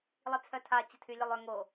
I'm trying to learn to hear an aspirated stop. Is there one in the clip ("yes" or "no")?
yes